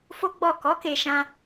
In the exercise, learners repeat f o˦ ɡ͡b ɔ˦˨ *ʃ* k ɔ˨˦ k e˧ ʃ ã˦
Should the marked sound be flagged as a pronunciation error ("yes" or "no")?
yes